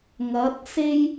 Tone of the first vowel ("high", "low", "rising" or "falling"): rising